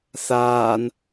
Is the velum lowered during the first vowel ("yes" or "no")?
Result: no